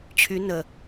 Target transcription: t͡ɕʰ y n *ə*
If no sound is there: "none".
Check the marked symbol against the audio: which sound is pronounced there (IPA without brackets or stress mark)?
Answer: ə